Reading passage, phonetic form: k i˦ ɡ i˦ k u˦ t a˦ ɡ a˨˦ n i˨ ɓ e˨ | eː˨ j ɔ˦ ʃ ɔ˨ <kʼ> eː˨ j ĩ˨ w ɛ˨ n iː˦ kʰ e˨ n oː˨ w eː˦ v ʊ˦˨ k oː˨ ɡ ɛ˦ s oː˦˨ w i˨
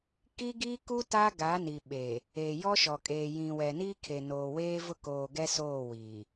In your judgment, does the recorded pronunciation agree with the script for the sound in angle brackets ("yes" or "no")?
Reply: yes